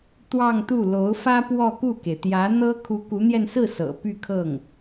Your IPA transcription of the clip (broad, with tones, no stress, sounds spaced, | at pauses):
t̪ w ɑ˥˧ ŋ t̪ u˥˩ l o˧˥ ʊ̯ f ä˥ p w ɔ˥˧ k u˥˩ k e˩ ɪ̯ t̪ j ä˧˥ n̪ ɤ˥ kʰ u˧˥ k u˧˥ n̪ j ɛ˧ n s ɹ̩˥˩ s ɤ̰˨˩ p y˥˧ kʰ ɤ˥˩ ŋ